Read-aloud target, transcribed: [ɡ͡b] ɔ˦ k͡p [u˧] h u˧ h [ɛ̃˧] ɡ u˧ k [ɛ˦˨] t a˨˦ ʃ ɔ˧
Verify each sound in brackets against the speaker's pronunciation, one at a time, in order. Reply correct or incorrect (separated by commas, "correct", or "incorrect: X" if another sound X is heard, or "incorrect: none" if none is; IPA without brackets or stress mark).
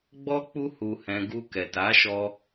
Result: correct, incorrect: u˦, correct, incorrect: ɛ˨